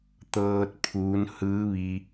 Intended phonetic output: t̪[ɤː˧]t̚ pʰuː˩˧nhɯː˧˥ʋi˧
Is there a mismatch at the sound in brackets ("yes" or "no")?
no